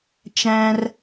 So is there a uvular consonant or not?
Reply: no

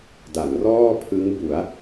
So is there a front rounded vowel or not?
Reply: no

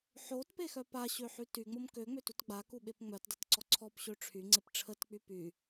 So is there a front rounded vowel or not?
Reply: yes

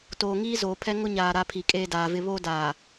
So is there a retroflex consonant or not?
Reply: no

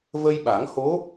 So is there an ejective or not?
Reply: no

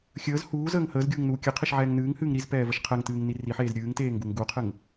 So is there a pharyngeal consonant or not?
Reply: yes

